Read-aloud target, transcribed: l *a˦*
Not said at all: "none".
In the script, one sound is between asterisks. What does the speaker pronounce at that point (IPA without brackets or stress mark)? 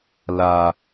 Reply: a˦